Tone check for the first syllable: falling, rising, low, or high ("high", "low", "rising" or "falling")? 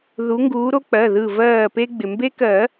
rising